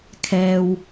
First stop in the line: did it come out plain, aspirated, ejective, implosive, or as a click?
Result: aspirated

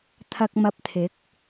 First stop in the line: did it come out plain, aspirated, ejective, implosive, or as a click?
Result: aspirated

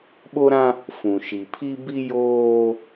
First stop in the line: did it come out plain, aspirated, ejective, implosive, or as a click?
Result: implosive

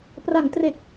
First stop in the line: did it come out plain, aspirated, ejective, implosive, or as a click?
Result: plain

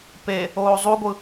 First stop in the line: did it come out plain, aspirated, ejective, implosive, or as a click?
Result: plain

